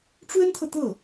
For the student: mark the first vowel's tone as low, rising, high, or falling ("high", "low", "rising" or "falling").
high